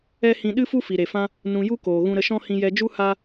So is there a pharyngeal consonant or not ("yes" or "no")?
no